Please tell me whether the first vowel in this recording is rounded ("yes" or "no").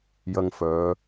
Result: no